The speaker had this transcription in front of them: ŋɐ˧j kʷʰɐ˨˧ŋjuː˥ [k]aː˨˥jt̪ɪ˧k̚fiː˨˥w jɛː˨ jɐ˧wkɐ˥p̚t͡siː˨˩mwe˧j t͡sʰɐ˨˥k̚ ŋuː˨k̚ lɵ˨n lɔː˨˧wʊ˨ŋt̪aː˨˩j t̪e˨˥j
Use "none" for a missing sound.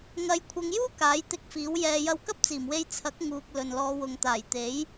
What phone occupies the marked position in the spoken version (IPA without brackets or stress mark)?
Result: k